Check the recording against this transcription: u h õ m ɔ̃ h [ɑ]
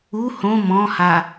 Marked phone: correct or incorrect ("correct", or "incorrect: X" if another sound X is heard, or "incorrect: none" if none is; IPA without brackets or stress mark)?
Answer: incorrect: a